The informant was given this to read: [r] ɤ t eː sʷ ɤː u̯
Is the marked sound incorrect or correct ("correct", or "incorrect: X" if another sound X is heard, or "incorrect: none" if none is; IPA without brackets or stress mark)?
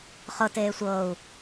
incorrect: χ